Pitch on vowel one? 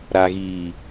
low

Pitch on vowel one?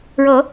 rising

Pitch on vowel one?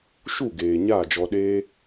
falling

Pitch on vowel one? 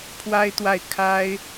high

